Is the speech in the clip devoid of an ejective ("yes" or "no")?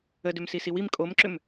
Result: no